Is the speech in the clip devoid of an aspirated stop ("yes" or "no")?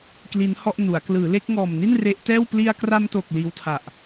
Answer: no